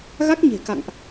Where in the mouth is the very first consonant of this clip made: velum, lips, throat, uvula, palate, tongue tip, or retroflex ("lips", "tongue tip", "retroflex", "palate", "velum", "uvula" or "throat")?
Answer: velum